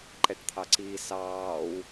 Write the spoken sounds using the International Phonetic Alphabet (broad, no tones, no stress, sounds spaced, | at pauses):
ǃ ɛ ʈ t̪ʰ ɑ ǀ iː s ɑː w